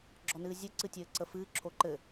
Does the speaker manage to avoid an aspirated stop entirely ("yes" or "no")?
no